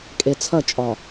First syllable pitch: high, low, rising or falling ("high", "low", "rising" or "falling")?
low